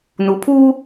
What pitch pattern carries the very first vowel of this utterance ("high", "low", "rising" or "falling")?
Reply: rising